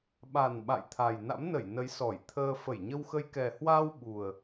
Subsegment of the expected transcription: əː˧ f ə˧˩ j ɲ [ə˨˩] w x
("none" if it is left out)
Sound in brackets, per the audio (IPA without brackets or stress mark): ə˧